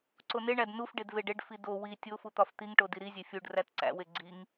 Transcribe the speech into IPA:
ǀoneɳæd nufɖed veɖeɖfi do wi tʲofu t̪ɒft̪iŋʈo diɾizʲe fʲuɖ rætǀæ̰we ɡ͡ǀiŋ

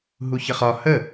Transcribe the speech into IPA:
ɦuçəχɒ hə

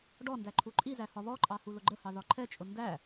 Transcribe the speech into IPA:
ɖɔndæ ǃʰuǃʼizæ hɒβɔǃʼɑ hulʊɡ͡ǃəhɑ ðɒǃʰɛt͡ʃʼʊ ndæ

